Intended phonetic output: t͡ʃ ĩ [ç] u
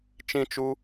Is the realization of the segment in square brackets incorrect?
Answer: yes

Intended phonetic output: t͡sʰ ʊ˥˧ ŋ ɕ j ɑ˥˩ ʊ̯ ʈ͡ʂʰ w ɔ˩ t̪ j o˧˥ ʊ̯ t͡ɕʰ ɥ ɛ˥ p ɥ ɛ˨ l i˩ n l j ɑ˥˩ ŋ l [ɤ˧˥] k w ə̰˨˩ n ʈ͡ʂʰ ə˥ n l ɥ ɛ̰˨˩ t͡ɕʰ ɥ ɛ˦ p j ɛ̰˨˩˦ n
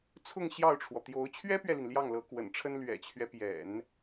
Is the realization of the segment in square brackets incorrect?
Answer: no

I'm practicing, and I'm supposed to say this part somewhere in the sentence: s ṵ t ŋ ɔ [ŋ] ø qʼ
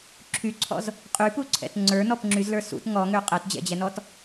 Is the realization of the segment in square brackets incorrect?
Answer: no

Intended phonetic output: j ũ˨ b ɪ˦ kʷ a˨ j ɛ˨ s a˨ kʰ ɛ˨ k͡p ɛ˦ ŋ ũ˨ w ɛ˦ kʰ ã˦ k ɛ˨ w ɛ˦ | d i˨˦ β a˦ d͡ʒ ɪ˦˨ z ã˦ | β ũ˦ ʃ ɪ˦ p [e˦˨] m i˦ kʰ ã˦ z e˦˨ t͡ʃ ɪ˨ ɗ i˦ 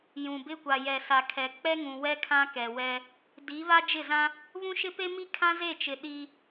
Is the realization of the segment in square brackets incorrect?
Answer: yes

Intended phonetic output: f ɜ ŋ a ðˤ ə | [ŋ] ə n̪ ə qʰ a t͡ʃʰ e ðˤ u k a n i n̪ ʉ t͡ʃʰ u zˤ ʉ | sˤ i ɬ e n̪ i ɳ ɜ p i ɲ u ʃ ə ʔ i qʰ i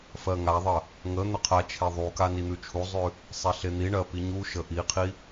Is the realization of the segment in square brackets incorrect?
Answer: no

